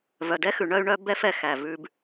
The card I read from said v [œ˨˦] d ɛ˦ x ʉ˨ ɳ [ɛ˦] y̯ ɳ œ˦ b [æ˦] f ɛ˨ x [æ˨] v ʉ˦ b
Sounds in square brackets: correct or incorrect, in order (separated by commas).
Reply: incorrect, incorrect, incorrect, correct